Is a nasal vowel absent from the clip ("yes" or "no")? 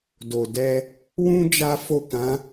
no